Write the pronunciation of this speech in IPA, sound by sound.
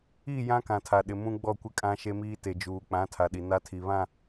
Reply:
iː˦˨ j ã˦ k ã˨ tʰ a˨ ɗ ɪ˨ m ũ˦ ɡ͡b ɔ˦˨ kʷ ɪ˦ kʼ ã˦ ʃ e˦ m iː˦ t e˨ d͡ʒ uː˨ k͡p ã˨˦ tʰ a˨ ɗ i˨ n a˦ tʰ i˨ β ã˦˨

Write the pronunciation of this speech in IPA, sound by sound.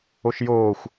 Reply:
o ʃ j oː xʷ

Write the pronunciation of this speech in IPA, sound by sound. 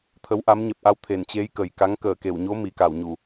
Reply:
t̪ʰ ə˨˦ w ʔ a˨˦ m ɲ ɛ˨˩ p̚ ʔ a˧ w t̪ʰ e˧˩ n t͡ɕ e˨˦ j k əː˨˩ j k a˨˦ ŋ k əː˨˩ k e˧˩ w ɲ o˨˦ m i˨˩ k a˧˩ w ɲ u˧˩˨

